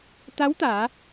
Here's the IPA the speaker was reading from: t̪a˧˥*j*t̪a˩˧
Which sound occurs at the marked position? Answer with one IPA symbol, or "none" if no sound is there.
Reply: w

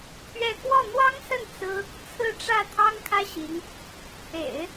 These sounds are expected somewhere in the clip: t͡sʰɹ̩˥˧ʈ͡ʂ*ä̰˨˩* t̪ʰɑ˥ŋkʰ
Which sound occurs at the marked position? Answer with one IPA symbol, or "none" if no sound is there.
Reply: ä˥˩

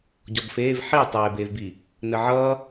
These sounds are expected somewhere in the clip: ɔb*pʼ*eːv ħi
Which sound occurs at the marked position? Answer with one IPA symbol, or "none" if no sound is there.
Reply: f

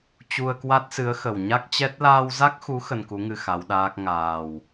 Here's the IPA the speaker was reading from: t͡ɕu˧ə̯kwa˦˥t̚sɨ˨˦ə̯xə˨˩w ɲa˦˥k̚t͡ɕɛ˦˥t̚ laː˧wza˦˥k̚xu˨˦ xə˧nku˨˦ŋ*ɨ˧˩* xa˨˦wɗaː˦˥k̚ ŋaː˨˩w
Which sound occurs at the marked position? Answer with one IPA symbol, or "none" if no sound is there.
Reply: ɨ˧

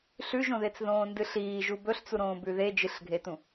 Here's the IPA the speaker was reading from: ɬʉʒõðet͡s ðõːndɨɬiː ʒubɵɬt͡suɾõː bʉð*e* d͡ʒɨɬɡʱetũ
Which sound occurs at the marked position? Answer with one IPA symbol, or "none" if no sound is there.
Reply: e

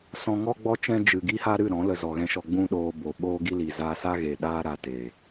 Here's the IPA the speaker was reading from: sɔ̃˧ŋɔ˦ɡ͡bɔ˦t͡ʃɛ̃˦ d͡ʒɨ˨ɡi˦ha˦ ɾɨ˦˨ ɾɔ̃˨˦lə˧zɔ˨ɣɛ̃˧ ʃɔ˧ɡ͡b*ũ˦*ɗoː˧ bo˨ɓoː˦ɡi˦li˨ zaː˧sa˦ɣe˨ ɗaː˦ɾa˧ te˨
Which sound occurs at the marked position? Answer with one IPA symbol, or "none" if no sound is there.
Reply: ũ˦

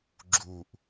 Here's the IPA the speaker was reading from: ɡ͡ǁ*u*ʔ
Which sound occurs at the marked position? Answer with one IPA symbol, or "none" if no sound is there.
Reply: u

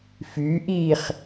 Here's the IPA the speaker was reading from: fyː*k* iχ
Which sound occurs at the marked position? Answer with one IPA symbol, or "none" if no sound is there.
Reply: ʔ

